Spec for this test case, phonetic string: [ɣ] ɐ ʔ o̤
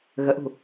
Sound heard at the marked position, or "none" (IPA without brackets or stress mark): ɣ